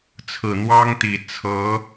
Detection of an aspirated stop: present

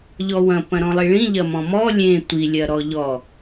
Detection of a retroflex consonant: present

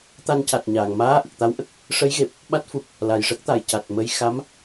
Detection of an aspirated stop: absent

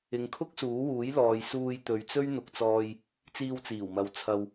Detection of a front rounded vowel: absent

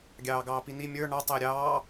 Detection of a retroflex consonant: present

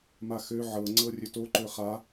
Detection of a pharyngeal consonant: present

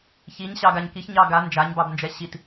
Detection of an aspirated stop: absent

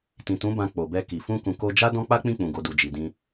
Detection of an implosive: absent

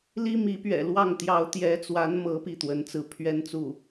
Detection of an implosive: absent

